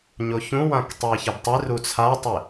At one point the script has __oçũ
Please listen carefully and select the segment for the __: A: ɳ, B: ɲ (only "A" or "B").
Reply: B